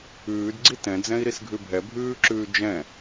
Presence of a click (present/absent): present